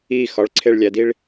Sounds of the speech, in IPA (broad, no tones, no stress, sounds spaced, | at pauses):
i x ɒ ɭ ǀʰ e ɭ lʲ æ d i ɭ